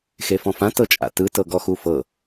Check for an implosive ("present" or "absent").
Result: absent